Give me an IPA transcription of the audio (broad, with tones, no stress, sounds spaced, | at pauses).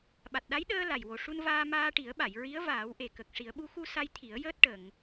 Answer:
ɓ a˨˩ t̚ ɗ a˧˥ j ɗ əː˧ l a˨˩ j w o˨˩ ʂ u˧ n v aː˧ m aː˧ ʈ i˨˩˦ ə̯ ɓ a˨˩˨ j ɹ i˧˥ ə̯ v aː˨˩˦ w ʔ e˨˩ k ə˨˩ k̚ ʂ i˨˩˦ ə̯ ɓ u˧˥ x u˧ s a˧ j t̪ʰ i˨˩˦ ə̯ j əː˦˥ t̚ ʈ ə˨˩˨ ŋ